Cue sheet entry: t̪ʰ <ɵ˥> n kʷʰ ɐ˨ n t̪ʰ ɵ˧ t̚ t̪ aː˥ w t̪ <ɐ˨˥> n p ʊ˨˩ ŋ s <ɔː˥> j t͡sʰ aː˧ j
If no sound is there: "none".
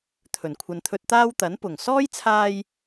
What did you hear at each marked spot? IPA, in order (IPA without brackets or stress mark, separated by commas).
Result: ɵ˨˩, ɐ˨˥, ɔː˥